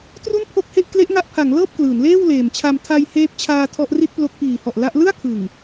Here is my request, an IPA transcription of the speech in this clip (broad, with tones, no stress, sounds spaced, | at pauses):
t r u˥˩ n pʰ o˥˩ k̚ h e˥˩ ʔ k l e˦˥ ʔ ŋ a˦˥ ʔ pʰ a˩˦ ŋ l ɤː˥˩ p̚ k l ɯː˩˦ n l eː˥˩ w l eː˨˩ m t͡ɕʰ a˧ m tʰ a˧ j h eː˦˥ p̚ t͡ɕʰ aː˧ tʰ ɔ˦˥ ʔ r i˥˩ t̚ p l o˦˥ k̚ p iː˨˩ h ɔ˨˩ ʔ l a˦˥ ʔ l ɯ˥˩ a̯ kʰ ɯ˨˩ ŋ